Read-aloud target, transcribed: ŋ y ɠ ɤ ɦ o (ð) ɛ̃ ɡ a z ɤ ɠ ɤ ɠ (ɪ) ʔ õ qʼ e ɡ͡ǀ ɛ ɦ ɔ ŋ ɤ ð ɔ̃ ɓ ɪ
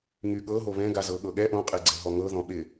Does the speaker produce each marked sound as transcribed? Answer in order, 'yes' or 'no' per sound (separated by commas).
no, no